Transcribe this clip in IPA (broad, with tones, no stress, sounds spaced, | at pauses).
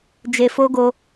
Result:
d͡ʒ e˧ f o˦ ɡ o˧